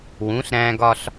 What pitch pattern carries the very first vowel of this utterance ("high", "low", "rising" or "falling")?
rising